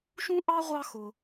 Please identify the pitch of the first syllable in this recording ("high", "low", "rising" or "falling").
high